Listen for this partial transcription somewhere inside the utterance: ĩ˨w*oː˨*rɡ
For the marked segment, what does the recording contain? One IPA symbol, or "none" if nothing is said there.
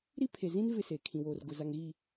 oː˨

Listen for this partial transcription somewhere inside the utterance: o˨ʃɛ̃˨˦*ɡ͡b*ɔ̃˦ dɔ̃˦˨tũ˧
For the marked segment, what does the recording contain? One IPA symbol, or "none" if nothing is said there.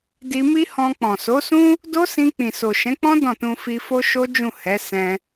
k͡p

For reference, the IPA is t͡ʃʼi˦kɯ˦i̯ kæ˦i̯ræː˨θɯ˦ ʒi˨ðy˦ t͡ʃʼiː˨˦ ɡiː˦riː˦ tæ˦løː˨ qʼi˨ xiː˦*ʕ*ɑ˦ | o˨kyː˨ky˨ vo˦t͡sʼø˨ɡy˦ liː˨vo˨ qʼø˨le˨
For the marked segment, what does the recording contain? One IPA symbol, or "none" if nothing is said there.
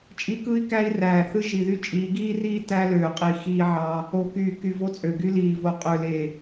ʕ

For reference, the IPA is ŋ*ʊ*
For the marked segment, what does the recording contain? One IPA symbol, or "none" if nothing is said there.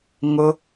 ʊ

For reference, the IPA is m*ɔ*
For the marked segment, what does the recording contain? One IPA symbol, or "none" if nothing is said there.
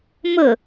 ʊ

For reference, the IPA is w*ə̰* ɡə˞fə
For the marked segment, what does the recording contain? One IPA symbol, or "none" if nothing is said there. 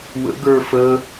ə̰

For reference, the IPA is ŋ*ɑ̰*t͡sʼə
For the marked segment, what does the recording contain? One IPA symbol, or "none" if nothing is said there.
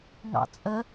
ɑ̰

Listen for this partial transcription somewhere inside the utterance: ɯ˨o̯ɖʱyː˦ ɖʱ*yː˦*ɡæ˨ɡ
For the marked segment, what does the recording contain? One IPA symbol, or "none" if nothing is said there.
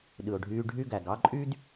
y˦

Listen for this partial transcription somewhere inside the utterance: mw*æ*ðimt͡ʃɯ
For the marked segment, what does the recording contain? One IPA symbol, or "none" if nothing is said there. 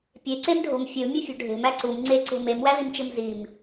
æ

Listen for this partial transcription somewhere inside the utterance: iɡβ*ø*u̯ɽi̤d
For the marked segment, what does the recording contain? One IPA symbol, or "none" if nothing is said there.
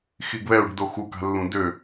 ɛ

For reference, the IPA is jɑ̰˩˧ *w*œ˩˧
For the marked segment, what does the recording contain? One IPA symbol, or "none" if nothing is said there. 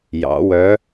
w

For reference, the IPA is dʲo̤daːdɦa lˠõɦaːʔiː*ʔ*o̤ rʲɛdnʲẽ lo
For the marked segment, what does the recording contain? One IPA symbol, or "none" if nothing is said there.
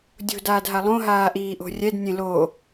ʔ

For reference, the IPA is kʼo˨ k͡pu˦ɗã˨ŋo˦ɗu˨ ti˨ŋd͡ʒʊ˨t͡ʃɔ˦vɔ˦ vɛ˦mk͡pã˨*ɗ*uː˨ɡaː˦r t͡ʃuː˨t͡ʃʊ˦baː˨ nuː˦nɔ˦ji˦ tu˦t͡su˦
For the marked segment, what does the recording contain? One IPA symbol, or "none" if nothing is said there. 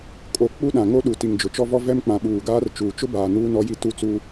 ɓ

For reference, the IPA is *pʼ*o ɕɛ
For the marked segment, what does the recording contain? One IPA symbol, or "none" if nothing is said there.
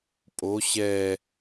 pʼ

